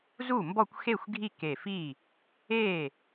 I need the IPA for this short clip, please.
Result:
z u˥˩ m b ɔ˥˩ kʷ x e˥˩ xʷ ɡʱ i˥˩ k e˧˩ f i˥˩ | e˥˩

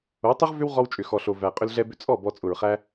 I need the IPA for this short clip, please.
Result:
o˨˦ tˤ ʏ˦ ʁ v ʏ˦ w ʁ ɔ˧ w t͡ʃʼ ʏ˨ x ɔ˨ ɬ o˨ v æ˨ qʼ ʏ˧ l ɮ ɛ˧ b ʏ˧ t͡sʼ ɔ˦˨ b ɔ˧ t͡sʼ ʊ˨ ɹ χ æ˦

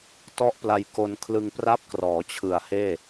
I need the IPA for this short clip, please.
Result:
t ɔ˦˥ ʔ p l a˧ j k o˧ n kʰ l ɯ˧ ŋ p r a˦˥ p̚ k r ɔː˩˦ t͡ɕʰ ɯ˨˩ a̯ h eː˥˩

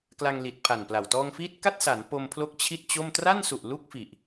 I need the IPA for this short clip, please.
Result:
k l a˧ ŋ l i˨˩ t̚ pʰ a˨˩ n p l a˨˩ w t ɔː˧ ŋ f iː˦˥ t̚ k a˥˩ t̚ s a˩˦ n p o˧ m pʰ l o˦˥ k̚ t͡ɕʰ i˥˩ t̚ t͡ɕ o˥˩ m t r a˥˩ n s u˨˩ ʔ l u˥˩ k̚ f i˨˩ ʔ

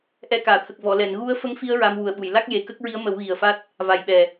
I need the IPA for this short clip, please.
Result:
ʔ ɛ˧ k aː˨˩˨ t̪ʰ ə˨˩ k̚ v ɔ˨˩˨ l ɛ˨˩˨ n ɣ u˧˥ ə̯ f ə˧˥ ŋ f i˧ ə̯ ɹ a˧ m w u˨˩ ə̯ ɓ u˨˩˨ j l a˦˥ k̚ j e˨˩ k ə˦˥ k̚ ɹ i˧˥ ə̯ m ə˨˩˦ w ɣ i˨˩ ə̯ f a˦˥ t̚ | v a˨˩ j ɓ ɛ˨˩

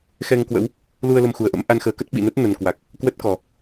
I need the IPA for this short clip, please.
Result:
x ɛ˧ ŋ k w ə̰˧˥ w | l u˧ ə̯ l ə˧ m x u˨˩ ə̯ ʔ ə̰˧˥ m ʔ a˧ n x əː˨˦ k ə˦˥ t̚ ɓ ḭ˧˨ n ə˦˥ t̚ n ə˨˩ n k w a˨˩ k̚ | k w ə˦˥ t̚ k ɔ˨˩

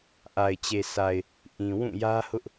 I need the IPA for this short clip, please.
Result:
ʔ a˨ ɪ̯ t͡ɕ e˨ s a˨ ɪ̯ | ʔ ĩ˨ w ũ˦˨ j ä˦ h ʊ˦ ʔ

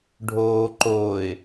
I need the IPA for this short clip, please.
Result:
ɖʱ oː ǃ oː ɪ̯

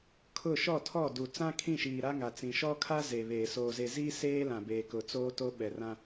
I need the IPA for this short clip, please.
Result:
kʰ ʊ˦˨ ʃ ɔ˦˨ tʰ ɔ˦˨ d u˨ t͡s ã˦ kʰ ĩ˦˨ ʃ iː˨ ɾ a˦ ŋ a˨ t͡s ĩ˨ ʃ ɔ˦ kʰ a˦ z e˨ β eː˨ s oː˨ z e˨ z iː˦ s eː˦ l ã˨ b eː˨ k ʊ˨ t͡s oː˦ t o˦ ɓ ɛ˨ r ã˦

